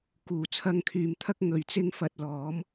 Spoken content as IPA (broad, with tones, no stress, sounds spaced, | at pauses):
k uː˨˩ t͡sʰ ɐ˧ ŋ kʰ yː˨ m t̪ʰ ɐ˥ k̚ ŋ ɵ˨ ɥ t͡s ɪ˥ ŋ f ɐ˧ t̚ l ɔː˨˥ m